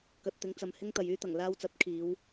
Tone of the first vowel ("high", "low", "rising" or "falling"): low